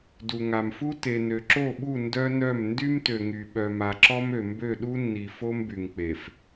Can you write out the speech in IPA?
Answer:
du˨ŋa˨mfu˦ te˨nø˨ǁo˦˨ɓu˦˨ ndœ˦nœ˦˨m ndy˦mtø˨ŋy˨ ɓœ˨ma˨ǁɔ˦mø˨ mbø˦˨ɗu˦nːi˨ fo˦mby˨ŋk͡pe˨f

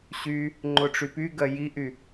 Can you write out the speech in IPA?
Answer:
ɕy | ŋ͡ǃʊʈ͡ʂypy ɡɜjiʔy

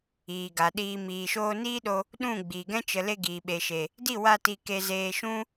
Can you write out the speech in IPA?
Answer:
iː˨ɡa˨ɗiː˧ miː˨ʃoː˧ niː˦ɗo˧ | ɗũ˦˨ ɡ͡biː˨ɡɛ̃˦ t͡ʃə˧ le˧ɡiː˨ɓe˨ʃe˨ | di˦˨ wa˧ ti˧ke˧zeː˧ ʃũ˦

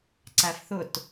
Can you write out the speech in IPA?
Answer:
ǀæfθʊt

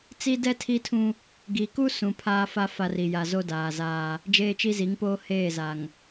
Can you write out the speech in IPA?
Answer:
t͡si˦dɛ˦ tʰi˦tʰũ˦ | ɡi˨ku˦ sũ˨pʰaː˦fa˦ fa˦ri˨ ja˨zo˦ daː˨zaː˦ | d͡ʒeː˦t͡ʃi˦zi˨˦ŋpoː˦ heː˦˨za˨ŋ

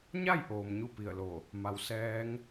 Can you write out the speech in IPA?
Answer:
ɲa˥˨jʔoː˩m ɲu˥˨pi˧˩ə̯lo˧˩ | ma˩˧wsɛː˧˥ŋ

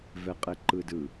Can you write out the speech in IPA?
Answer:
vɛqʼɛǃɯdɯ

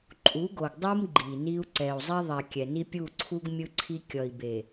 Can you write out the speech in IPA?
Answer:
ǃʼu˨˦ɡo˨ɡdˤɯ˦m ɡ͡ǃi˨ni˦u̯ ǀɛ˨u̯zˤi˦ðˤɛ˨ kʲɛ˨ni˦ pʲu˦˨ǀʰu˦ɡ mʲɯ˦ǀʰi˦ kʲʌ˨i̯be˨

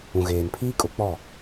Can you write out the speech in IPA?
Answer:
ũ˨ɣeː˨npʰiː˦kʼʊ˨˦ k͡pɔ˦˨

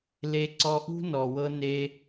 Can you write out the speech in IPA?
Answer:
le˧ ǀɔ˧ʔṳ˦nɔ˨wɤ˧ ne˧

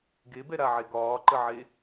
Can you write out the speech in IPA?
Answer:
ɡebɛɾaʕe ɡɒːǃəʕe

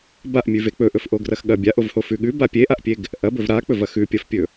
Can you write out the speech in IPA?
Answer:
baʔmʲʉve k͡pɵʔɵfʔoɡrɐx ɠɐ bʲaʔovhofʉ ɠʉba pʲeʔaʔpʲeɡ | ʔɐbɵv ɾak͡pɵvɐ xʉpʲɐfpʲɵ

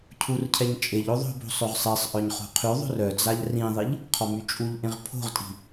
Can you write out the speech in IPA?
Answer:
cʰurcʰɛɲ t͡ʃʼeʎo ðˤo̤bo̤ sˤøʁsˤesˤʔœɲ χo̤qʰyðˤo̤r œd͡zaʎ rĩðˤiʎ | qʰɔmyt͡ʃʼuʎʔẽʁ pʰo̤ʁtʼi̤

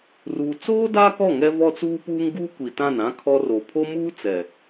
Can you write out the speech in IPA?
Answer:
ruː˨t͡soː˦ daː˦kɔ˦˨ ŋɛ˦vɔ˦t͡suː˦puː˦ŋ ɡuː˦kʷi˨ tã˦˨nã˦ kʰɔ˦ ro˨pʰo˦muː˦t͡sɛ˨

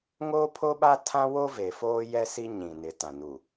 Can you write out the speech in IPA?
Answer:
ŋoː˦ pʰo˦ɓa˦ tʰã˦wo˦ ve˨foː˦jɛ˦ si˦ɲĩ˨nɪ˨ tã˨nu˨

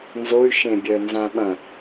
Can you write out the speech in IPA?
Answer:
nzoy̯ ʃẽbʲœ nzãɓɐ̃

